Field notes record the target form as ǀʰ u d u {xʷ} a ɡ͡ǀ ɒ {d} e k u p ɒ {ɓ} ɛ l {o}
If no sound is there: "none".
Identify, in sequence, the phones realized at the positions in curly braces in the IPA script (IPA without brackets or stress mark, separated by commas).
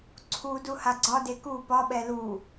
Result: h, d, ɓ, u